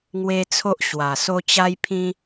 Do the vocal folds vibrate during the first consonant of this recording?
yes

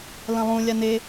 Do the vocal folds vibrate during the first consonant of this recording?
yes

